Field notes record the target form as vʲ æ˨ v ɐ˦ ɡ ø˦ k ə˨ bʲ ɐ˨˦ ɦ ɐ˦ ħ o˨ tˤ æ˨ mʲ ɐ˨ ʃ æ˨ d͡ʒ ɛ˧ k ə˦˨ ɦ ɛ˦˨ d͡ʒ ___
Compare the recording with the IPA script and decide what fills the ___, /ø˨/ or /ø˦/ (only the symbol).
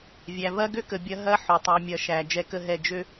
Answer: ø˦